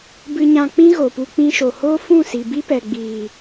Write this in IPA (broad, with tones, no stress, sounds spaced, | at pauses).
b ɨ˧ ɲ ã˧ k͡p ĩ˦ ɣ o˨ p u˧ k͡p ĩ˧ ʃ o˨ h oː˦ f ũ˦˨ s i˨ b i˦ p ɛ˨ ɡ͡b iː˨